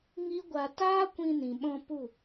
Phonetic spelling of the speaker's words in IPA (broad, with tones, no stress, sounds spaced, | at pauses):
ŋ i˦ ɡʷ a˧ t aː˦ kʷ ĩ˧ n ĩ˨ ɓ ɔ̃˧ p u˦˨